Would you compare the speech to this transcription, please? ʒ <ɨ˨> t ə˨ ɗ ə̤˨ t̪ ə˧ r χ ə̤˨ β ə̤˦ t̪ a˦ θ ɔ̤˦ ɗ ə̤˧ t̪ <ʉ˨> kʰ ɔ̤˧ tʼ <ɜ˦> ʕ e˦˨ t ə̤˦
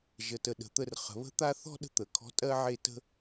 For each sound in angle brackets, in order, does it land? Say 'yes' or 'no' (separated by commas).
no, no, yes